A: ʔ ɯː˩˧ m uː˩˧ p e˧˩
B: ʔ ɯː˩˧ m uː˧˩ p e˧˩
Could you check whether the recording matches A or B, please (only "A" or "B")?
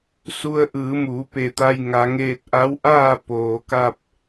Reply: A